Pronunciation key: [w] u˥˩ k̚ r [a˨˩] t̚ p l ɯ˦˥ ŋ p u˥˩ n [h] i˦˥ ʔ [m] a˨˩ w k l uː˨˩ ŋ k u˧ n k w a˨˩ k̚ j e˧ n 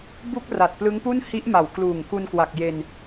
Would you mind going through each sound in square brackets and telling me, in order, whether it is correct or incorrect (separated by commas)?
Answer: incorrect, correct, correct, correct